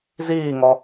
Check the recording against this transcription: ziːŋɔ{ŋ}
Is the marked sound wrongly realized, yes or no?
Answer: yes